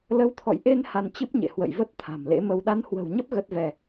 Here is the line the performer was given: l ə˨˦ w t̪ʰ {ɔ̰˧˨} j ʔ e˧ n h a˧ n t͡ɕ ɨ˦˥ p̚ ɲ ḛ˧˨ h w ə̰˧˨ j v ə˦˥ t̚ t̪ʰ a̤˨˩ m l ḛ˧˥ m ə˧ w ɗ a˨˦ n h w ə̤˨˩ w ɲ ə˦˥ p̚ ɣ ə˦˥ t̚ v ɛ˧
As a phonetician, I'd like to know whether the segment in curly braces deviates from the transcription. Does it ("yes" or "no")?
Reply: no